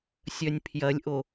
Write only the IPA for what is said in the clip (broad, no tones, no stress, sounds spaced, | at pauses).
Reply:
sʲ œ nʲ pʰ j ɐ lʲ ʔ o